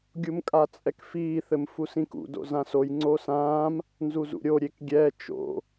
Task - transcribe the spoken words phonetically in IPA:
ɡʲ u m kʼ a t͡sʼ ɛ k f iː θ ɘ m f u s ĩ k ṵ d o̰ z ã s o j ŋ͡ǀ o s ãː m | n z u z ṵ ɾʲ o ɾʲ e k ɡʲ ɛ t͡ʃ o̰

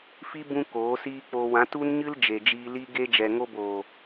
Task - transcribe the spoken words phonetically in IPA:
f i˦ b ũ˦ k oː˨˦ s iː˦ k͡p o˧ w ã˨˦ t u˦ n ɲ ɨ˦ l d͡ʒ e˨ d͡ʒ iː˧ l i˧ ɡ e˦ d͡ʒ ɛ˨ ŋ o˧ b oː˨

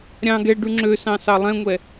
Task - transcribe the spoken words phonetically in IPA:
ɾʲ ɑ̃ ɡ ɛ ɖ ʉ ŋ͡ǁ ø s ɑ̃ s ɑ lˠ ɛ̃ ŋʷ ɛ

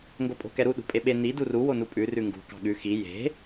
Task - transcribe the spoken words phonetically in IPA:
ŋ ɡ o pʼ o̤ k ɛ ɾ u ɗ ṳ pʼ e ɓ e n i d u r u w o n u pʼ ʉ r ʉ ŋ ɡ ṳ k ɑ̤ ɠ ʉ x i j e̤

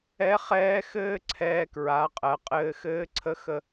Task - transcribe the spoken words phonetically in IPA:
ɛ˧˥ χ ɛː˧˥ x ɘː˥ ǀʰ ɛː˧ k ɹ a˩˧ qʼ ɜ˩ qʼ ɘː˧ x ɘː˧˥ ǀʰ ə˧˥ x ə˧

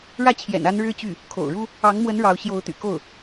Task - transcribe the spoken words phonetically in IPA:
ɻ ä˥˩ t͡ɕʰ j ɛ̰˨˩ n a˧˥ n ɻ ɻ̩˥˧ t͡ɕ y˥˩ | kʰ o̰˨˩ ʊ̯ ɻ u˥ | ɑ˧˥ ŋ m w ə˧˥ n ɻ ɑ˧˥ ʊ̯ ɕ j o˧˥ ʊ̯ t̪ y̰˨˩ k o˥˩ ʊ̯

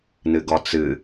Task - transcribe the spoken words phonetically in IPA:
n ɨ ɡ ɔ t͡s ɨ

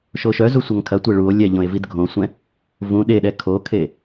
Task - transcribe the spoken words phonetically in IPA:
ʃ o ʃ œ z u sʷ ʌ ŋ kʰ ɐ tʷ e ɭ u o̯ lʲ ɛ ʎ õ e̯ v i d ɡʱ õ sʷ ɛ̃ | v ũ ɗ e ɗ ɛ kʰ o kʰ e

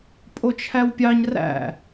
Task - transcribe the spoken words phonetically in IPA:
pʼ o t͡ʃʰ æ w pʲ ɑ ɲ r æ̰

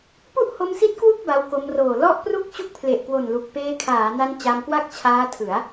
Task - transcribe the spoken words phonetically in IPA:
p u˥˩ ʔ h o˧ m s i˦˥ t̚ k w u˥˩ k̚ b a˧ w k o˧ m r oː˨˩ l ɔ˥˩ ʔ p r u˥˩ k̚ t͡ɕ u˥˩ k̚ pʰ l e˨˩ ʔ k w o˨˩ n l u˨˩ k̚ p eː˧ kʰ aː˩˦ n a˧ n t͡ɕ a˧ m k w a˥˩ k̚ t͡ɕʰ aː˦˥ tʰ ɯ˩˦ a̯

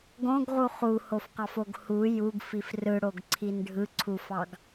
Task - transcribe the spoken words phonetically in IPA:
ɡ õ ɡ ʁ u χ u h o f q ɑ f o ɡ h u j u ɡ f i f r ɯ ɽ o ɡ ǀʰ i n ɖʱ ɯ ǀʰ u f ɑ ɡ

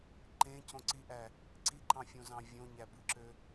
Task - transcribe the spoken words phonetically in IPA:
ǃ ẽ c õ ǀ i ʔ æ | ǀ i ǃ ɑ̃ fʲ õ z ɑ̃ vʲ õ ɲ æ b ɯ ǁ ø

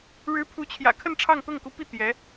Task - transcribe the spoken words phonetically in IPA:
ɻ ɻ̩˧˥ pʰ u˧˥ t͡ɕʰ j ä̰˨˩ kʰ ə˥˧ n ʈ͡ʂʰ ɑ˥˧ ŋ t̪ ɤ˥˩ ŋ k u˧˥ p i˥˩ t̪ j ɛ˧˥

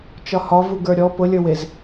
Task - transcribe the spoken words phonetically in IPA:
t͡ʃ ɒ h ɒ v u ɡ ə˞ ɾʲ ɔ p ʊ lʲ ə˞ w e z

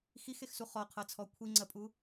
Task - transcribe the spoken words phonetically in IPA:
x i x e x s u χ ɔ qʰ ɤ t͡sʰ ɔ kʷʰ i ŋ͡ǀ ɜ pʼ u

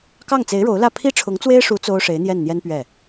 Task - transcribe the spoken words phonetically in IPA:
k ɑ˥˩ ŋ t͡s e˧˥ ɪ̯ ɻ o˧˥ ʊ̯ l ä˥˩ pʰ i˥ ʈ͡ʂʰ ʊ˧˥ ŋ t͡s w e˥ ɪ̯ ʂ u˧˥ t͡s o˥ ʊ̯ ʂ e˧˥ ɪ̯ n̪ j ɛ˥˩ n n̪ j ɛ˥ n p ɥ ɛ˥˩

